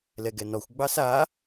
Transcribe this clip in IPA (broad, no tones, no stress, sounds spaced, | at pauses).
l ɛ ɡ ɛ n ɔ xʷ ɡ͡b ɑ s a